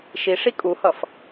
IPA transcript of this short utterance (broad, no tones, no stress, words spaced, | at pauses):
ʃiʂi kʼuhʌf